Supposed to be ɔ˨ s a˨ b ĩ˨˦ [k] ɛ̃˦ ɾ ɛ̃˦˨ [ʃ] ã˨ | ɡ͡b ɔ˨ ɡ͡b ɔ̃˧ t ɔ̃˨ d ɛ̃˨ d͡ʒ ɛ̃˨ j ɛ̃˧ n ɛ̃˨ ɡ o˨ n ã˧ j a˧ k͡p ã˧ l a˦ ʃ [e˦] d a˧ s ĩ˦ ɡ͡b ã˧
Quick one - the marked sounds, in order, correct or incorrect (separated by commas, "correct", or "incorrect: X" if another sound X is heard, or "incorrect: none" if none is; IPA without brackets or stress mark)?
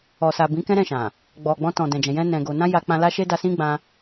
correct, correct, correct